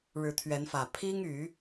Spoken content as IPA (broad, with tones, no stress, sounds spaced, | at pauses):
ɻ ɻ̩˨˦ t̪ʰ ɥ ɛ˨˦ n f ä˨˩ pʰ i˦ ŋ y˨˦